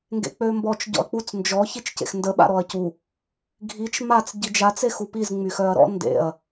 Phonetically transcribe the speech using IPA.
ŋ ɡ ḛ k͡p ø m b ɔ t͡ʃ ɟ ɔ̰ ɐ̯ k͡p u t͡s n d͡ʒ ɔ ç i t͡ʃ c ḛ x n d ə ɓ a̰ ɾ ɔ ɐ̯ c u | ɡʱ i t͡ʃ m a t͡s ɟ i d͡ʒ a t͡s e x u p i z ŋ͡m y x œ ɐ̯ ɾ ɔ̰ n d ḛ ɐ̯

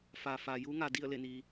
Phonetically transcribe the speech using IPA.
f aː˩ f aː˩ j u˧˥ ŋ a˩ d i˥˨ ə̯ l e˧˩ n iː˩

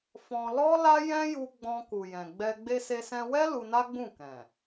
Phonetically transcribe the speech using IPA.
f ɔ̃˧ l ɔ˦ l a˦ j ɛ̃˦ j u˧ ɡ͡b ɔ̃˧ k u˨ j ɛ̃˨ ɡ͡b ɛ˧ ɡ͡b e˧ s e˧ s ɛ̃˧ w ɛ˦ l u˧ n a˦ ɡ͡b ũ˦˨ k ɛ̃˨

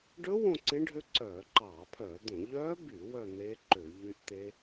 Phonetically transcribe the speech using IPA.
ɖ ɵ˦˥ w õ˥˧ ǀ ẽ˦˥ ɖʱ ø˦˥ ǀ œː˧˩˧ ǃ ɑː˧˩˧ pʰ œː˧˩˧ d̪ õ˧˩˧ ʎ œː˦˥ b y˧˩˧ w œ˥˧ n̪ eː˦˥ ǃ ø˧˩˧ ʎ y˦˥ ʔ t̪ e˦˥

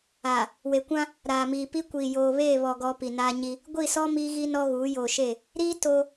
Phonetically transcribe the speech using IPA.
aː˨ | w e˨ kʷ ã˦ | ɾ aː˨ m iː˨ p i˦ kʷ iː˨ j oː˨ β eː˦˨ β ɔ˨ ɡ ɔ˦ p i˨ n aː˦ ɲ i˦ | ɡʷ i˦˨ s ɔ˦ m iː˦ ɣ i˦ n ɔ˦ ɣ uː˨˦ j oː˨ ʃ e˦˨ | ɾ iː˦ t o˦

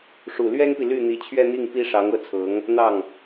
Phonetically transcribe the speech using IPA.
ʂ u˨˩ l ɥ ɛ˥ n p i˨ l y˥˩ n̪ i˧˥ t͡ɕʰ ɥ ɛ˥˧ n̪ i˥˩ ŋ p i˥ ʂ ɑ˧˥ ŋ ɤ˥˩ t͡sʰ ɤ˧˥ ŋ | n̪ ɑ˥˩ ŋ

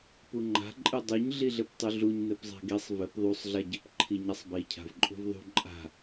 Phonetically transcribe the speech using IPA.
p u ŋ͡ǃ a̤ ǃʼ ɨ dˤ u ɲ ɮ i ɮ ɘ p tˤ u ɮ u ɲ n ɘ p zˤ a̤ ɡ i sˤ v ɘ p ðˤ u sˤ ɮ a ɟ ɘ p ǃʰ i ɲ a sˤ b i cʰ a̤ v ǃʼ ṳ v ðˤ ṳ ǃʼ a̤

